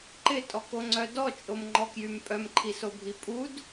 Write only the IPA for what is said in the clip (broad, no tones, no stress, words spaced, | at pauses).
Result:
ǃɪtʼɔkoŋ͡ǀœ dɔt͡ʃʼomŋ͡ǃɔkjym pʼœmǃʰisobʱi pʼud